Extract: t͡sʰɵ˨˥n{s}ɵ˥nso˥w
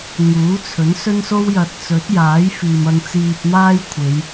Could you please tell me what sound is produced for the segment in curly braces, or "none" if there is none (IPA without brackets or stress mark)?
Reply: s